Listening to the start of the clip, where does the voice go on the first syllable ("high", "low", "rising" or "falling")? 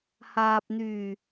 low